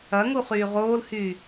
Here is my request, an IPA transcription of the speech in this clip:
ɐ ŋ u χ yː ʁ oː l h yː

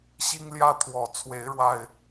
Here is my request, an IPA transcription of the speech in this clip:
ɕ i˦ ŋ l j ä˦ t̪ʰ w ɔ˨˩ t͡sʰ w e˨˦ ɪ̯ ɻ w a˨˩ ɪ̯

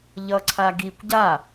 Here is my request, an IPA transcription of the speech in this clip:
ʎ ʌ ǀʰ a ɡ i kʷ ɟ a

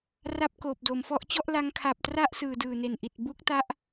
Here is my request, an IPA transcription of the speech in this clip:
r a˥˩ p̚ k oː˨˩ p̚ d o˩˦ m f ɔ˦˥ ʔ t͡ɕ ɔ˥˩ ʔ l a˦˥ ŋ kʰ a˨˩ p̚ t r a˥˩ ʔ s ɯː˨˩ d ɯː˨˩ n e˨˩ n ʔ i˨˩ t̚ b u˦˥ k̚ t a˦˥ ʔ

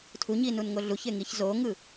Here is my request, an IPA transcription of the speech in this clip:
tʰ u ɲ i n u n ŋ o ɮ u ç e ŋ i ç z o ŋ ɯ

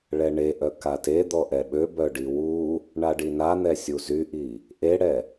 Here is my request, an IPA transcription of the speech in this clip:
ɭ ɛ ɳ e ʔ œ k a t e d̪ ɔ ʔ ɛ ɓ ø b œ ɖ i w u | ɳ a ɖ i n a n̪ ɛ sʲ u z y ʔ i | ʔ e ɽ ɛ

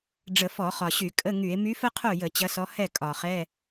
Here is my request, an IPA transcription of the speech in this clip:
ɖ͡ʐ ə˧˩˧ f ɔ˧˩˧ χ ɒ˨˩ ɕ y˧˩˧ kʼ ə˧˥˧ ŋ y˧˩˧ e̯ m y˧˥ f ə˥ qʰ o˥˩ j ə˧˩˧ t͡ɕ ɐ˧˥ s ɔ˧˥ h ɛ˥˩ kʼ ɒ˨˩ χ ɛ˧˥˧

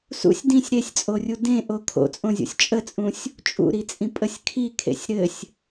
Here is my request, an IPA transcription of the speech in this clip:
s ṵ sʲ d ĩ sʲ ɾ e sʲ t͡sʼ o rʲ u d ẽ ʔ o kʰ o̰ t͡sʼ õ zʲ o̰ sʲ t͡ʃʼ ə t͡sʼ ũ sʲ | t͡ʃʼ ṵ ɾ i t͡sʼ ĩ pʼ ə sʲ kʰ i kʰ ḛ sʲ ɾ ɘ sʲ

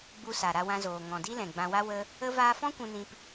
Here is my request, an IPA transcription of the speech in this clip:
ɡ͡b u˧ s a˨ ɾ a˧ w ã˧ z oː˨ ŋ ɔ̃˨ d i˦ l ɛ̃˨ ɡ͡b ã˧ w a˦ w ə˦ | ə˦ v aː˦ f ɔ̃˦ kʷ ũ˧ n ĩ˧ p

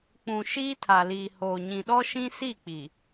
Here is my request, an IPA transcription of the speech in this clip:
k͡p ũ˨ ʃ iː˦ tʰ a˨ l iː˨ h oː˨ ɲ ĩ˨ ɗ ɔ˦ ʃ ĩ˦ s i˦˨ k͡p i˨

